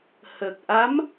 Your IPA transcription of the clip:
h əː˨˩ k̚ ʔ a˧˥ m

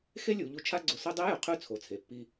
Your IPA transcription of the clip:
x e˥ lʲ u˩˧ ʎ u˧˥ t͡ʃʰ a˥ ɡ͡ǀ ʊ˧ s o˥ dˤ e˧˥ j ʊ˩ qʰ ʉ˧ t͡sʰ o˩ t͡sʰ e˩ pː i˧

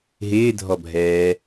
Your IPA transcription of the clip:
ɦ ɪː dʱ ɔ bʱ ɛː

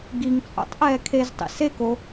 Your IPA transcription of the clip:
ɡ i ŋ t͡sʼ o̰ tˤ ʔ ɛː kʰ e z tˤ ḭ s e k o

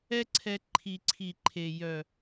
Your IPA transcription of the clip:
ɛ˦ ǀʰ ɛ˧ ǃʰ i˨ ǀʰ i˨ ǃʰ e˨ j œ˨

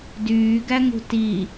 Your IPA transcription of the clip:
d yː ɡ æ ŋ ṳ t i

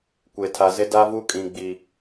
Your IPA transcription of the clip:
kʷ e˨ tʰ a˨ z ɪ˦ d a˦ v u˦ kʼ ĩ˨ ɡ͡b i˨

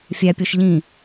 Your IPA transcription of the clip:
fʲ æ pʲ o ʃ ʎ ĩ

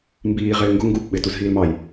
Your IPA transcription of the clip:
m b iː ʁ ɪː ŋ ɡ ʊ ŋ ɡ u p ɓ ɪ t u z ɦ iː l m ɑ j

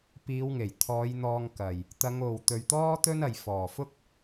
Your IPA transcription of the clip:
p iː˨˧ w ŋ e˨˩ j t̪ʰ ɔː˨˧ j n̪ ɔː˧ ŋ k ɐ˨ j | t̪ ɐ˨˧ ŋ o˨ w t̪ ɵ˨ ɥ t̪ ɔː˥ t̪ ɵ˥ n ɐ˨ j f ɔː˨˩ f ʊ˥ k̚

